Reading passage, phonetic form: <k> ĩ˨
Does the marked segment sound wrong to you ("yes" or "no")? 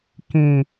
no